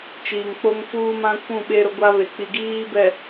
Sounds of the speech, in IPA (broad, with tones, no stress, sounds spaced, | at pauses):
t͡ʃ iː˨ ŋ k͡p o˦ ŋ f uː˦ m ã˦ kʷ ũ˦˨ ɓ e˦ ɾ ʊ˦ ɡʷ a˦ β e˨ k͡p i˨ ɡ iː˦ b ɛ˨